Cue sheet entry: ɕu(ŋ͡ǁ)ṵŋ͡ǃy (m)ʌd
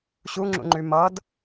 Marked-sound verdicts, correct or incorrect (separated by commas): correct, correct